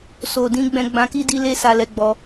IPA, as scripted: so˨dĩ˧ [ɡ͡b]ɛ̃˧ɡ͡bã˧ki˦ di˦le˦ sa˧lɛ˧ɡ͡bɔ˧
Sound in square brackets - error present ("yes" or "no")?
no